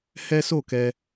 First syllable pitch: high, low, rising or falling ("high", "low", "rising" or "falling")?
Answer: high